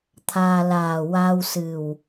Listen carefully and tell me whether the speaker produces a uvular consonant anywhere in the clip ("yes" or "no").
no